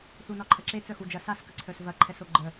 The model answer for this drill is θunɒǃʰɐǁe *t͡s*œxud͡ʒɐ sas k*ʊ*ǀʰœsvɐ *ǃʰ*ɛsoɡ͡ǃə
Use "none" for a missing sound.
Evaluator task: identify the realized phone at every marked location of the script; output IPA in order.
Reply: t͡s, ə, ǃʰ

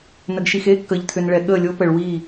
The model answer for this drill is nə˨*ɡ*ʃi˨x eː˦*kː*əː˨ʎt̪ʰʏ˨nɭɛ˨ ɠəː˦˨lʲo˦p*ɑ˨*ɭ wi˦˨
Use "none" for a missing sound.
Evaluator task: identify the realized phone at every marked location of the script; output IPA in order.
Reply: ɡ, kː, ə˨

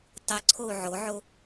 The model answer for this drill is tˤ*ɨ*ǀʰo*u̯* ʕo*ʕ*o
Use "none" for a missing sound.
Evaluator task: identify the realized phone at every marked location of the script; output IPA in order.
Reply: ɨ, u̯, ʕ

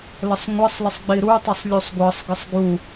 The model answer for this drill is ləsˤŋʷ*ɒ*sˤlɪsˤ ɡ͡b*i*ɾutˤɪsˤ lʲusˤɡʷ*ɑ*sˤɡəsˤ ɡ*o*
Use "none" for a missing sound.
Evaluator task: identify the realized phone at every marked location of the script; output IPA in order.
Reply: ʌ, i, ɑ, u

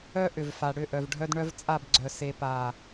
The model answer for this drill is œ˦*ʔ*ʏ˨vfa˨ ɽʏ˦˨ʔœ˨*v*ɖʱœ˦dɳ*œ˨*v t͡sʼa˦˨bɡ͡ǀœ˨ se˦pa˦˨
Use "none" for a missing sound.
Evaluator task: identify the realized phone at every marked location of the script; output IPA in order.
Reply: ʔ, v, œ˦

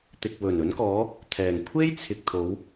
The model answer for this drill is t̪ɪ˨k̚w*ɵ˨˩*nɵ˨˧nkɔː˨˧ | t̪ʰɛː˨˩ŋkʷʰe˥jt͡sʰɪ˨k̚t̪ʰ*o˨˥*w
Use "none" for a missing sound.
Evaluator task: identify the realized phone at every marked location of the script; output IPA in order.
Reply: ɵ˨˩, o˨˧

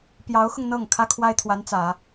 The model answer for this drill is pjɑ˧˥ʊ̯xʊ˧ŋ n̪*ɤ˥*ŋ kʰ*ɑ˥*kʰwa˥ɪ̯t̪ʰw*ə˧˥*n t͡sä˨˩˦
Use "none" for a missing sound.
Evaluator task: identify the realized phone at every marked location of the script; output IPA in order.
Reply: ɤ˥˩, ä˥, a˧˥

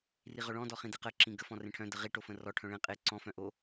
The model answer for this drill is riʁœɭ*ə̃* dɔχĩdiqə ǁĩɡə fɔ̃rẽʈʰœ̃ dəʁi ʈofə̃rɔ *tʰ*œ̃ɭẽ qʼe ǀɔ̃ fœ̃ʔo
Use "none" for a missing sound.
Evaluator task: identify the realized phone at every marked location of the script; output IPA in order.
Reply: ɔ̃, ʈʰ

